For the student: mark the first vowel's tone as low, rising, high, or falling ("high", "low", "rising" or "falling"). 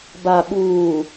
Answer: low